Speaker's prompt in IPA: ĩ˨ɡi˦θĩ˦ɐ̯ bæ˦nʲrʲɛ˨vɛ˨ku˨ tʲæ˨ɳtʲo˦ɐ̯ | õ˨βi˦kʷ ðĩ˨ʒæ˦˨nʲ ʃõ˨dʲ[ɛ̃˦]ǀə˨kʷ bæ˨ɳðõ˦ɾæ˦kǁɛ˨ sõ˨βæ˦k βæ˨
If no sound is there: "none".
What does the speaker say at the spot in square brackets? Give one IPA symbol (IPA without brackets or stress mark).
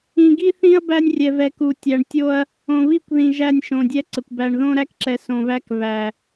ɛ˦